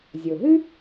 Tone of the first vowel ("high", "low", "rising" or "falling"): low